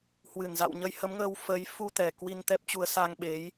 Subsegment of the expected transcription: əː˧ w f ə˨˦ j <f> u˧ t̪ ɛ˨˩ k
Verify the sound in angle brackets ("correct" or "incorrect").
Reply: correct